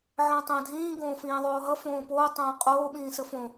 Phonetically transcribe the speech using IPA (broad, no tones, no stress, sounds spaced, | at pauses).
ʕ ə̃ː tˤ ə̃ː dʱ ĩː ɡ õː f ĩː ðˤ oː ɦ ʌ f õː p oː tˤ õː qʼ oː ɓ ĩː s ə f õ